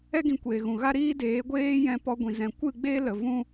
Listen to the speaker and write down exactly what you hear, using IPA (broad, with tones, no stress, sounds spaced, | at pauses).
ɛ˦ ɡ ĩ˧ kʷ eː˨ ɣ ũ˨ ɣ a˦ ɾ iː˦ d eː˨˦ ɡʷ eː˦ j ɛ̃˧ p ɔ˧ ɡʷ ĩ˨ z ɛ̃˨ kʷ ɨ˦˨ ɡ͡b eː˦ l ə˨ v ũ˦